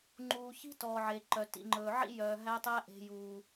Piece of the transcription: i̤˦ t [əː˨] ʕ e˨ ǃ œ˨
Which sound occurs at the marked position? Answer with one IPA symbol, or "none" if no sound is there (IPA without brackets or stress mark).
ɔː˨